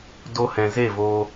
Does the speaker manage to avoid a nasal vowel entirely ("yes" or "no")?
no